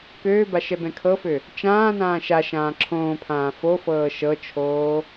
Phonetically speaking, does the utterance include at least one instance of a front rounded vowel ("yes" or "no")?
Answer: yes